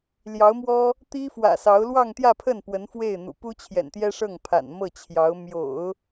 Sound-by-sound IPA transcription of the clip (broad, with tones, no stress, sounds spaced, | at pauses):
l j ɑ˧˥ ʊ̯ m w ɔ˥ | t̪ i˥ f w ä̰˨˩ s ɑ˧˥ ʊ̯ l w ɑ˥˧ ŋ t̪ j ä˥˧ pʰ ə˥˩ n p w ə˧˥ n f w e˥˩ ɪ̯ n̪ ṵ˨˩ p u˥ t͡ɕʰ j ɛ̰˨˩ n t̪ j ɛ˥ ʂ ɤ˥˩ ŋ pʰ a̰˨˩ n m ɤ˥˩ t͡ɕʰ j ɑ˧˥ ʊ̯ m j o̰˨˩˦ ʊ̯